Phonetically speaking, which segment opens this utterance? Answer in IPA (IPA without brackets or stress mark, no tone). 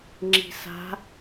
ŋ͡ǁ